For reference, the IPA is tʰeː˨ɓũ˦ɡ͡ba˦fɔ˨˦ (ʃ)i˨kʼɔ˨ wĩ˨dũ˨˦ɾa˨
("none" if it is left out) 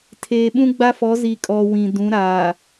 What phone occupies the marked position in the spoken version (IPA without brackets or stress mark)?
z